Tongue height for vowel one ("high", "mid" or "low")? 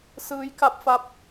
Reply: high